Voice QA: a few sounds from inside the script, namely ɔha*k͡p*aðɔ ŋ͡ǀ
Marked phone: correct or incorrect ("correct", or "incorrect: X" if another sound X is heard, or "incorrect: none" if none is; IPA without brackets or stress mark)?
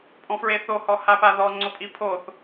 incorrect: p